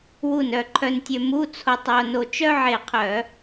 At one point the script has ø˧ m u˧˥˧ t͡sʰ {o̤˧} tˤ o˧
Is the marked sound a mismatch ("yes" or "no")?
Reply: yes